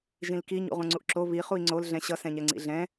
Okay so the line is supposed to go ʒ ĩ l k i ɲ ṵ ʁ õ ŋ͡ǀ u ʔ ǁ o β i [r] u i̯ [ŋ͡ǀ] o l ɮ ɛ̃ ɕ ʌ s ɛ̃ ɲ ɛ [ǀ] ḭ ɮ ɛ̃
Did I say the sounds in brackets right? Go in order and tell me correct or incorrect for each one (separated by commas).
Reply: incorrect, correct, incorrect